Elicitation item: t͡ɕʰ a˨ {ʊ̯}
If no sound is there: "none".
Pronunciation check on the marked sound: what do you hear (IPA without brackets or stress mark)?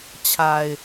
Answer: ɪ̯